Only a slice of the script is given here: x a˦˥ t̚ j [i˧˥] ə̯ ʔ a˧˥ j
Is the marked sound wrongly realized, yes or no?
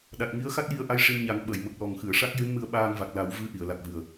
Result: yes